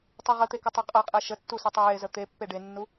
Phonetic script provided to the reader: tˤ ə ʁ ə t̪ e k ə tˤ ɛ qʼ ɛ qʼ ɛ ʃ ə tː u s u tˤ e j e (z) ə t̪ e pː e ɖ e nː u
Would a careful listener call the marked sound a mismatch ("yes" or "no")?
no